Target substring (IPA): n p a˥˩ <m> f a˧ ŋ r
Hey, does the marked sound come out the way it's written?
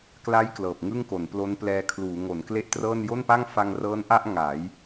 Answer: no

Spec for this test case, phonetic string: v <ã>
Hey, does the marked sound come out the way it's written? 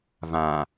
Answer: yes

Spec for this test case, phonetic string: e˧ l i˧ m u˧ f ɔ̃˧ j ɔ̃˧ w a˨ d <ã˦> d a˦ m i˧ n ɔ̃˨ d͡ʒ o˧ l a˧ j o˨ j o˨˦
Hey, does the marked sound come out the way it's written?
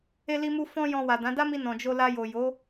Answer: no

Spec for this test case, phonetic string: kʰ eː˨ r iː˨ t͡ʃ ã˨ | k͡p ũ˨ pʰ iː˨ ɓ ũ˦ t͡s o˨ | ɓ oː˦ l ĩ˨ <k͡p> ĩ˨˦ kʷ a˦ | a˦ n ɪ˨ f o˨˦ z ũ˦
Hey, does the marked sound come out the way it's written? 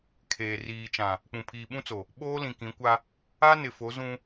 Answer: no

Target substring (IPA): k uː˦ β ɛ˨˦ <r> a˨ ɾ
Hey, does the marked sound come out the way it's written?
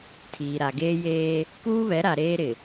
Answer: no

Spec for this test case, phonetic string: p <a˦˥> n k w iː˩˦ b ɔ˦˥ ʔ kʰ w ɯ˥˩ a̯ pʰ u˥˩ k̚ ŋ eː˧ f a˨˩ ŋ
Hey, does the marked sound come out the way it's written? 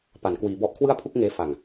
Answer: no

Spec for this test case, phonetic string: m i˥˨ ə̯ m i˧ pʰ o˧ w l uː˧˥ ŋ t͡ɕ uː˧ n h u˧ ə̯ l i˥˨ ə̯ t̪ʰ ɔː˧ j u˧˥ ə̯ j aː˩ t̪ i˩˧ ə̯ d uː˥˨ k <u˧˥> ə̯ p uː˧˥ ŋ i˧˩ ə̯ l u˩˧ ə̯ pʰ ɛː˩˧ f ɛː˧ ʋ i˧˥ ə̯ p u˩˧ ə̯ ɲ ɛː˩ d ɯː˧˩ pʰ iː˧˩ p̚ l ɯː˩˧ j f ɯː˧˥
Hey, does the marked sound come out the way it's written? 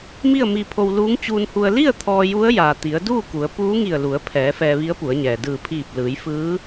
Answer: no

